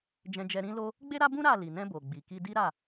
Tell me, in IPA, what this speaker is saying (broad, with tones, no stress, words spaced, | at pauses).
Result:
d͡ʒɛ̃˧d͡ʒɛ˧ ɾĩ˦ lo˦ | ɡ͡be˦ɾa˦bũ˦ ɾa˦˨ li˨nɛ̃˧ bo˨ɡ͡bi˨ ki˧di˦ɾa˦˨